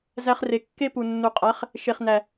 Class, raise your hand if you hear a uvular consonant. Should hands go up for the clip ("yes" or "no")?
yes